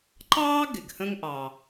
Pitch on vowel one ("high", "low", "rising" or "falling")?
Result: high